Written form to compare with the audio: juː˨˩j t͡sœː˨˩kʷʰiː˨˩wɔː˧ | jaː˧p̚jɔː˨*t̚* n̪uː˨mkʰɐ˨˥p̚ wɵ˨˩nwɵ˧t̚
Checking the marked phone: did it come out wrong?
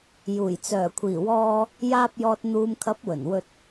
no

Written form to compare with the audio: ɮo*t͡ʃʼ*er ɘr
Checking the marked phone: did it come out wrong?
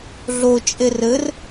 no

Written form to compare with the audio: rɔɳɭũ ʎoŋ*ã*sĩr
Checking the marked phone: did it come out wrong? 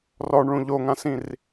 no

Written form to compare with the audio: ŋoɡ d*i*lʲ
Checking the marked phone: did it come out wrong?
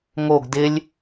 yes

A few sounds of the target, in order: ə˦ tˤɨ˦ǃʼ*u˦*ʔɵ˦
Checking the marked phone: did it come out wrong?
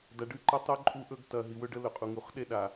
no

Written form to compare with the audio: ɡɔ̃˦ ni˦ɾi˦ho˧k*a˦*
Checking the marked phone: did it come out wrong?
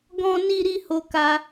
yes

